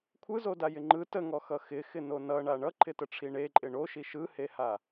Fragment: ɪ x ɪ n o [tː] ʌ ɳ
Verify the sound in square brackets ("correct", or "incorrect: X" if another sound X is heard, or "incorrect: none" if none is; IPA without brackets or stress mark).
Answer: incorrect: n